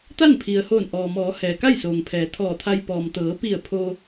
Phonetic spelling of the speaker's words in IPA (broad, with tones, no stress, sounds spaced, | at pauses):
t̪ a˥˨ n pʰ i˩ ə̯ h oː˧˩ n ʔ ɔː˩ m ɔː˩˧ h ɛː˩ k a˥˨ j s oː˩ ŋ pʰ ɛː˩˧ t̪ʰ ɔː˧˩ t̪ʰ a˧ j p ɔː˩ m t̪ ɤː˩˧ p i˧˩ ə̯ pʰ o˧